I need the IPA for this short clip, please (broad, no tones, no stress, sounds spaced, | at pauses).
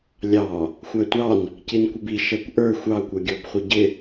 lʲ ɑ | xʷ æ tʷ ɑ n | c i n kʷ ɪ b i ʃ ɛ kʷ ʔ ə˞ xʷ ɑ kʷ ʌ ɡʲ ɔ b χʷ ɪ ɟ ɪ